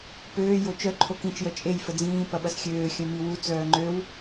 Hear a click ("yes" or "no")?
yes